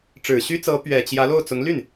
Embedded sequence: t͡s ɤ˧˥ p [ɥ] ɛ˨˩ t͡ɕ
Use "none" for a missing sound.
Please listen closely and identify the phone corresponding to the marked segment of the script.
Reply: ɥ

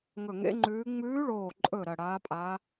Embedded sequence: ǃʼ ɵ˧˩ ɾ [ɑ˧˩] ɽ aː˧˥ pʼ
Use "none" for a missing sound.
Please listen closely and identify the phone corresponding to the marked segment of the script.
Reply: ɐ˧˩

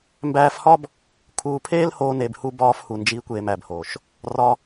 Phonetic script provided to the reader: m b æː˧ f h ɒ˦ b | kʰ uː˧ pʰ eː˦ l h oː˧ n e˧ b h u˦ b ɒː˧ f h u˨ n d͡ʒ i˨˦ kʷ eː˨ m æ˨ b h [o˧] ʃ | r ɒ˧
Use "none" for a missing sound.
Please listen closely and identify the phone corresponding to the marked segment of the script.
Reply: o˨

